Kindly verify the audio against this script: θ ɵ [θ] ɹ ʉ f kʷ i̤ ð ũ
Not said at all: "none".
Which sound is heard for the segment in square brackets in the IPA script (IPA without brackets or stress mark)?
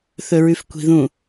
none